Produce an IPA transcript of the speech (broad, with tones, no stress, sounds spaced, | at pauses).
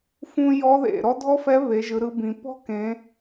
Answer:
f ũ˥ j ɔ˧˥ ð ḛ˩ ɾ ɔ˥ dʱ ɔ˥ f ɛ˧˥ β e˩˧ ʒ ɯ˩˧ ɾ ɯ˧ b ĩ˩ p ɔ̤˥ k ẽ˩˧